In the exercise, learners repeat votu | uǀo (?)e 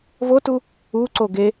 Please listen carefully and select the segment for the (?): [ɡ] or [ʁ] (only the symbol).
ɡ